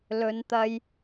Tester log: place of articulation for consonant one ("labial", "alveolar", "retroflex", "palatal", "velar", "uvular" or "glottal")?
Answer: alveolar